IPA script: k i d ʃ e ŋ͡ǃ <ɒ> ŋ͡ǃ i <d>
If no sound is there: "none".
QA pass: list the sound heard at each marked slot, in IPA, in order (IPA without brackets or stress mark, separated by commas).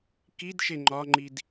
ɒ, d